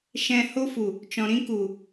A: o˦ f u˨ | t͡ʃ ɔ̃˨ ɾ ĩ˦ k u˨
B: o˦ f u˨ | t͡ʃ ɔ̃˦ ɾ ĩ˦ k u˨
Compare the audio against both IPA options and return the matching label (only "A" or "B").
A